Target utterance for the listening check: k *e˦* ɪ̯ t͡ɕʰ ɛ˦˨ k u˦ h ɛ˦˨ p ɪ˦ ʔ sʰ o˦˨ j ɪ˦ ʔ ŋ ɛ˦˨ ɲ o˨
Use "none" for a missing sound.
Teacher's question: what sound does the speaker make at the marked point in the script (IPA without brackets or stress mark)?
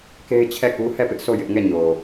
e˦